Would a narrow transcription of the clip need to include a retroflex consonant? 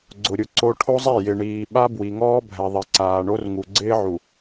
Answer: yes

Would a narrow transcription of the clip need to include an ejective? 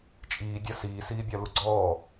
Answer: yes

